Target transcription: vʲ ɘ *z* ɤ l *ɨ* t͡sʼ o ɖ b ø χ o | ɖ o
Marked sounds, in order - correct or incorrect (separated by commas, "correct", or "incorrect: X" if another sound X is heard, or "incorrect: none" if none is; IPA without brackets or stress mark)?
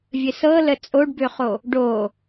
incorrect: s, incorrect: ə